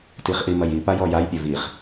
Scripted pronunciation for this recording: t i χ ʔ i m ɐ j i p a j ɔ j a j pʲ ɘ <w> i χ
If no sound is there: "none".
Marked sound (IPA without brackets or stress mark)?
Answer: v